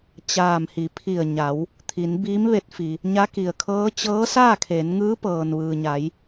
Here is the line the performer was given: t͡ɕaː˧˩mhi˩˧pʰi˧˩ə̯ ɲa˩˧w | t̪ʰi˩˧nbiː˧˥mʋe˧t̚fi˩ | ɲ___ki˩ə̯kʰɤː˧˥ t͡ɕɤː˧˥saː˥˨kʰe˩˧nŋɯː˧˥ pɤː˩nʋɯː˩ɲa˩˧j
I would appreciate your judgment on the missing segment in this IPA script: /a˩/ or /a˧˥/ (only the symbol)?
a˧˥